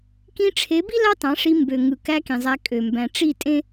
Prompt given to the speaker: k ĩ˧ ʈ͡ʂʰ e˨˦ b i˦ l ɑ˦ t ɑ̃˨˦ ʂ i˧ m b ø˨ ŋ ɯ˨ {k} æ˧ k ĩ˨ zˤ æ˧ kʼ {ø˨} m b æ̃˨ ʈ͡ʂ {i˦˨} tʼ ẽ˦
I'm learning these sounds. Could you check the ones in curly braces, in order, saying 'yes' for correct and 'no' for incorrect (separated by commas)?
yes, yes, yes